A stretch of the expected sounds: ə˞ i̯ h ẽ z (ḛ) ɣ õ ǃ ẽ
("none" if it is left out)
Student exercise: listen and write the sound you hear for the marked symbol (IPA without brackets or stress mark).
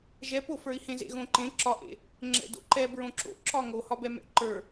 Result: ḛ